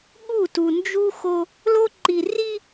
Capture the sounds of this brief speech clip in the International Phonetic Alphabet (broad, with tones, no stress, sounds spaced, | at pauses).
ɠ u˦˨ t u˨ n d͡ʒ u˦ x o˦ | l o˦ ǃ i˨ r i˦